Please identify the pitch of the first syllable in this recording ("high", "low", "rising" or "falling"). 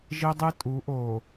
high